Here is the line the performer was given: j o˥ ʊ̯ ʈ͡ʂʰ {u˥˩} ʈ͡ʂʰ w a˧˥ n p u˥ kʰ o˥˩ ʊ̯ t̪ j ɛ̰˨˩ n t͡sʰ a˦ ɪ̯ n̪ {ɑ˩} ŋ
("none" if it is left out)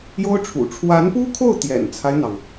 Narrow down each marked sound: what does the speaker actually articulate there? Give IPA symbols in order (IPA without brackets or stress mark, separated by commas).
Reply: ṵ˨˩, ɑ˩